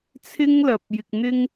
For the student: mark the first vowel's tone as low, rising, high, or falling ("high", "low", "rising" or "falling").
high